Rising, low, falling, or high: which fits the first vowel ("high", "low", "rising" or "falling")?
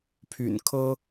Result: low